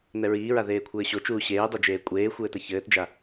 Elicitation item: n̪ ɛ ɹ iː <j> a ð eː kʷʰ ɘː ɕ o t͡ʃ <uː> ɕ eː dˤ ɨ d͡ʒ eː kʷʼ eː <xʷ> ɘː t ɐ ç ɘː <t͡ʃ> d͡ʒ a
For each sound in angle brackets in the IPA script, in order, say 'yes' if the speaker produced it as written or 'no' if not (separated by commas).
no, yes, yes, no